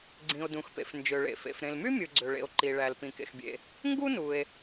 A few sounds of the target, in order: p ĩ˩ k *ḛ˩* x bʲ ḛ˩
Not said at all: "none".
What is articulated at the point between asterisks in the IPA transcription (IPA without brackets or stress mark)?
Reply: ḛ˩